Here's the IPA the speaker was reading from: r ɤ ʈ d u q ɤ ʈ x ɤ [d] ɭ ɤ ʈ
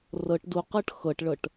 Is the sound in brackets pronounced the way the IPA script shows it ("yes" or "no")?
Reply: no